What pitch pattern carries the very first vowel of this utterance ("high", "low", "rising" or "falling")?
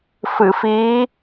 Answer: low